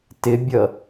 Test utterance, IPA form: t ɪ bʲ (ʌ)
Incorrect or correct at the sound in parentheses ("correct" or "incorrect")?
correct